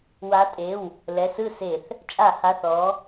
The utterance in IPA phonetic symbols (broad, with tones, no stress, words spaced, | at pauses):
wa˨˦tʼe˩˧˩w | lɛ˩˧˩sɯ˥˩se˧˩˧θ | t͡ʃʼa˧˩˧ha˩˧˩θ ɔ˨˦